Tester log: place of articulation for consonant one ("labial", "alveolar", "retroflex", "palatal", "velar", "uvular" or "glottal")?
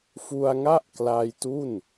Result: labial